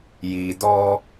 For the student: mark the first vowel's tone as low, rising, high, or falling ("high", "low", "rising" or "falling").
low